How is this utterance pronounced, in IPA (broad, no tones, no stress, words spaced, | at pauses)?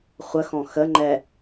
χʷəxɔ̃ xəŋ͡ǃɛ